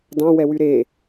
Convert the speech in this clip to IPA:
d ɑ̃ w ɛ w y ɾ e

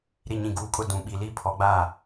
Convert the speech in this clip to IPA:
ɾ i˨ ɲ ĩ˨ ɡ uː˨ kʼ ʊ˦˨ d ũ˨ ɓ i˨ l i˦ pʰ ɔ˨˦ ɡ͡b aː˦˨

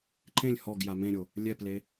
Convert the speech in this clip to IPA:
ǃ ẽ lʲ h ɔ ɡ j a m ẽ ɾʲ o | lʲ ɛ p l e

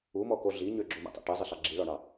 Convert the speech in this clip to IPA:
u m ɔ k o ɮ i ɲ ø ɡ͡ǁ o m ḭ tˤ o̰ ʈ e zˤ ɘ ɬ ɑ ɡ͡ǁ i ɭ ɔ ɳ ɑ

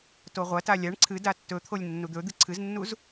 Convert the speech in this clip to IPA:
t o ʁʷ ɐ t a lʲ a ɳ ǀʰ ɨ d a tː ɵ t̪ʰ o lʲ nː u d̪ ɵ d̪ ɨ ǀʰ ɨ z nː u z

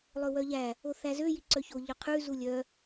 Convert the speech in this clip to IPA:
lˠ ɵ w œ ʎ æ | o θ æ z ø j i ǀ œ ç o ʎ œ qʰ ʉ z u lʲ œ

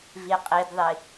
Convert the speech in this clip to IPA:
v i qʼ i d ðˤ i

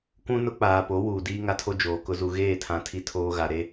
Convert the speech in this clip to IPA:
kʷ ũ˦ n ʊ˦ k͡p aː˨ p o˨˦ w uː˨ d iː˦ ŋ a˦ tʰ o˦ d͡ʒ oː˨ k ʊ˦ z u˦ ɣ eː˦˨ tʰ ã˨˦ tʰ i˨ tʰ oː˦ ɣ a˨ ɾ e˦

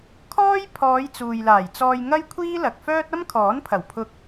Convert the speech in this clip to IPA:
kʰ ɔː˥ j pʰ ɔː˨˧ j t͡s uː˨ j l aː˨˩ j t͡s ɔː˧ j ŋ ɐ˥ j kʷʰ iː˥ l ɐ˨ k̚ f œː˥ t̚ ɐ˥ m kʰ ɔː˨˥ n pʰ ɐ˨˩ w pʰ ʊ˧ k̚

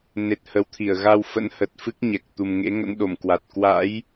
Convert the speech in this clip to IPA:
n e˨˩ t̚ h ə˨˦ w t̪ʰ i˧˩ ə̯ ɣ a˧ w f ə̰˧˥ n h ə˨˩ t̚ f ɨ˦˥ k̚ ɲ ɛ˨˩ k̚ t̪ u˨˩ m ŋ ḛ˧˥ ŋ ə̰˧˥ n ɗ o˧˩ m k w a˨˩ t̚ k w a̰˧˥ j

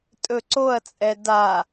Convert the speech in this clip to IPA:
tʼ ɵ ǀ o ɐ̯ t͡sʼ ɛ d a

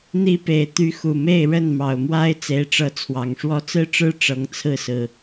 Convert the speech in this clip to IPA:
n̪ i˦ p e˨˩ ɪ̯ t̪ y˨˦ x u˨˩ m e˥˨ ɪ̯ ɻ ə˥˨ n m ɑ˨˩ ʊ̯ m w a˦ ɪ̯ t͡s e˨˦ ɪ̯ ʈ͡ʂ ɤ˨˦ t͡sʰ w ɑ˨˩ ŋ ʂ w ɔ˥˨ t͡s ɹ̩˦ ʈ͡ʂ ɻ̩˦ ʈ͡ʂ ɤ˨˦ ŋ t͡sʰ ɹ̩˥˨ s ɹ̩˨˩

